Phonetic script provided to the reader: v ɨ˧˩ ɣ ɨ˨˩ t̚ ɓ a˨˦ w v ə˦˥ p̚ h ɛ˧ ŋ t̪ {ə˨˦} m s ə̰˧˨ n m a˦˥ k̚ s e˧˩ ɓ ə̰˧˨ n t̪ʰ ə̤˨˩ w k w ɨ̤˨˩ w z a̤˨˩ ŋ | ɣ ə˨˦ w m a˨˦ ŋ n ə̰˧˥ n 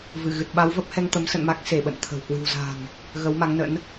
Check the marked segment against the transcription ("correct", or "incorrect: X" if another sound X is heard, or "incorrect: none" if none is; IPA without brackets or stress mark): correct